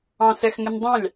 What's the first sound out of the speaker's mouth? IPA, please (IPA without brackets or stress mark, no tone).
ɑ̃